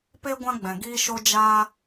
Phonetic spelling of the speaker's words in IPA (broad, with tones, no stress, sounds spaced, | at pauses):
p e˦ ɡʷ ã˦ ɡ͡b ɛ̃˨ ɡ iː˦ ʃ o˦ d͡ʒ aː˧